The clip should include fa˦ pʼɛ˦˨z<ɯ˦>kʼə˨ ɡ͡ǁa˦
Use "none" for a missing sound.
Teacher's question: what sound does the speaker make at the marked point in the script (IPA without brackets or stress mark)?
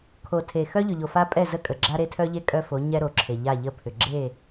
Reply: ə˦